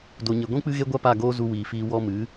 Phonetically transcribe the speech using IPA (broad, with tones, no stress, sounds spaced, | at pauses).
d o˨ ɲ e˨ ɡʷ ĩ˦ k͡p ɨ˦ ɣ e˦ ɡʷ a˦ p a˦˨ ɡ oː˦ z u˧ w iː˨ f iː˧ w ɔ˧ m ɨ˨˦